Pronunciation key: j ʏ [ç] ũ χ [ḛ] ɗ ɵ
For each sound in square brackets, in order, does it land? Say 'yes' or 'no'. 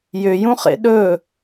no, yes

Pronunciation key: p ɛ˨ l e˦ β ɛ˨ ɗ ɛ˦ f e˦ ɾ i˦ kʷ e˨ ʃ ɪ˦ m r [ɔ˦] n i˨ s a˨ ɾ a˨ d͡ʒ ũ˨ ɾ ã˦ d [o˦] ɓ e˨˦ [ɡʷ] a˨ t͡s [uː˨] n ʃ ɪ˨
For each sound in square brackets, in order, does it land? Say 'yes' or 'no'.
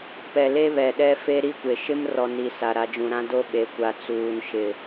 no, yes, no, yes

